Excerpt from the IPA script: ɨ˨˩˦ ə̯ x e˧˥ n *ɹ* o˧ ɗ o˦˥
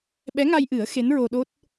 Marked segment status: correct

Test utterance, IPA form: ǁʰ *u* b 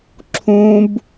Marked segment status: incorrect: ũ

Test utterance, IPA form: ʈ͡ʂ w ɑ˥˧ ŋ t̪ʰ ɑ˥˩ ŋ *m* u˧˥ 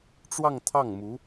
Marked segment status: correct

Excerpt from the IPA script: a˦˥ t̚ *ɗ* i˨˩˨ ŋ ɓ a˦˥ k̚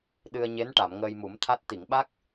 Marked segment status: incorrect: t̪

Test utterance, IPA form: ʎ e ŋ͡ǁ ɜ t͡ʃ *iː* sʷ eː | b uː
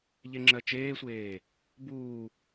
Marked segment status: incorrect: eː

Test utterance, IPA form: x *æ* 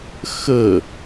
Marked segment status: incorrect: ə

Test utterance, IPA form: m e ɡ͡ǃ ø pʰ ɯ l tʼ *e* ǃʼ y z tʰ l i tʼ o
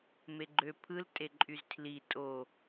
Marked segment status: correct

